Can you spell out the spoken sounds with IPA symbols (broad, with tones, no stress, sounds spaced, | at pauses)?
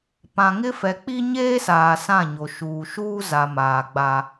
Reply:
p ã˨ ŋ ɪ˦ f ɛ˨ k͡p i˦ ɲ eː˦ s aː˨ s ã˦˨ ɲ o˨ ʃ uː˨ ʃ uː˦ z a˨ m aː˨ ɡ͡b a˦